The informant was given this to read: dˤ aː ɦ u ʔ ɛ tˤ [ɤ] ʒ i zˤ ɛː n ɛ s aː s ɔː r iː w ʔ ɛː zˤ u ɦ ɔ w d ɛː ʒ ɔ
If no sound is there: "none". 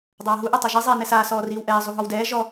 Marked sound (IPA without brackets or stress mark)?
ɤ